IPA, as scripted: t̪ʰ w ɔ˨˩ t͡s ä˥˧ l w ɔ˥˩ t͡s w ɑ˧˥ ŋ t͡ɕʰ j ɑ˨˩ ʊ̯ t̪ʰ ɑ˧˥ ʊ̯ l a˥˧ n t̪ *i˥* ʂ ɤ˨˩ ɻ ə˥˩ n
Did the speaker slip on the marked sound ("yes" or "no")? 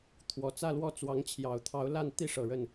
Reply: yes